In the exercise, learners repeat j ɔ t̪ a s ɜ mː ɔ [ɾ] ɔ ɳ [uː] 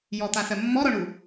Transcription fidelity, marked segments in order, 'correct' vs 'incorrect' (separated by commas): correct, incorrect